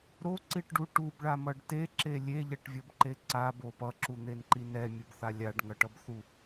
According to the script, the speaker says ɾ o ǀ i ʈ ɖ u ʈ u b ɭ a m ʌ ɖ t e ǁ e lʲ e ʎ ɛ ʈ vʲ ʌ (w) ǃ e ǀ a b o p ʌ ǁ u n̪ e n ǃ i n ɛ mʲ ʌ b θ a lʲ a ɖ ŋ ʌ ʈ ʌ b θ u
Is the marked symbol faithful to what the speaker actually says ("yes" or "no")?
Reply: no